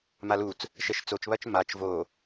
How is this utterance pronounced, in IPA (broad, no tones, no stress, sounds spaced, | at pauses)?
m a l u t͡s | ʃ ɛ ʃ t͡s o t͡ʃ β ɐ t͡ʃ m a t͡ʃ v o